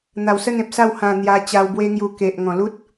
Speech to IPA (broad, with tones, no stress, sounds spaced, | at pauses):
n̪ a˨˩ w s ə˥˧ n ẽ˨ p̚ s a˥˧ w h ã˨˩ n̪ j a˧ t͡ɕ a˧ w b w e˦ ŋ j u˧ k e˨ ʔ ŋ ɔ̃˨˩ l u˦ t̚